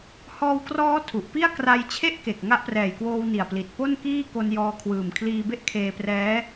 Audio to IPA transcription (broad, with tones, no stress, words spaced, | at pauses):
hɔː˧wkrɔː˦˥ tʰu˨˩ʔpi˥˩a̯ kra˦˥j t͡ɕʰe˥˩ʔke˨˩k̚ ŋa˦˥ʔprɛː˨˩jkwoː˧w ni˨˩a̯pli˨˩t̚ po˥˩nkiː˥˩ ko˧njɔː˧ kʰwɯː˨˩mkʰliː˧be˥˩ʔ kʰeː˧prɛː˦˥